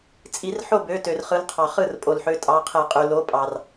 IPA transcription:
t͡sʼ i˧˩˧ r ħ o˥˩ b ø˩˧˩ t ø˩ r χ ɯ˩˥ l qʰ ɑ˩ χ ɯ˥˩ r pʼ o˩ l ħ ø˩˥ tʼ ɑ˩˧˩ qʰ e˧˩˧ qʼ y˩ l o˩˥ pʼ ɑ˩ r

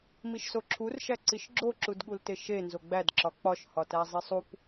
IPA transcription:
m i ʃ s o ǁʰ u r ʃ æ ǀ i ʃ ɡ͡ǁ o ǁ u d ɠ u l t e ʃ e n z o ɡ͡b æ d ǁ ɒ k͡p ɒ ʃ h ɒ t æ zˤ i sˤ u p

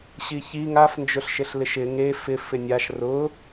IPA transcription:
ɕ i ç i ŋ a f n d͡ʒ ʊ ɬ ʃ ɪ ɬ l ɪ ʃ ɪ ŋ e f ɪ f ɪ nʲ a ʃ r ʊ

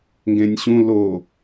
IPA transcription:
ŋ ɡ ẽ nʲ ɕ ũ l o

